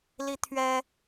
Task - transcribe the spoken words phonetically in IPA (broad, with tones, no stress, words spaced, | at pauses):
li˥t̪ʰɥɛ˥